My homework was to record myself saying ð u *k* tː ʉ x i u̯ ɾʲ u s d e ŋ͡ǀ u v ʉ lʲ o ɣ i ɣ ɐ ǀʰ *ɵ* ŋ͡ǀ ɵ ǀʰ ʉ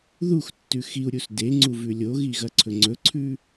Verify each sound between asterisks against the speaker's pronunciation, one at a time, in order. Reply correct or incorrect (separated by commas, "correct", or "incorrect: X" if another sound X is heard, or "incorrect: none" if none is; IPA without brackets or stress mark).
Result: incorrect: x, correct